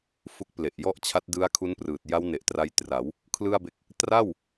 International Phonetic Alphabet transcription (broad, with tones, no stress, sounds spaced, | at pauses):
f u˦˥ k̚ p l e˨˩ ʔ j ɔ˥˩ ʔ t͡ɕʰ a˦˥ t̚ d ɯ˦˥ a̯ kʰ u˦˥ n p r ɯː˨˩ t̚ j a˦˥ w n e˨˩ ʔ t r a˧ j t r a˩˦ w | kʰ l ɯ˥˩ a̯ b e˦˥ k̚ | t r a˥˩ w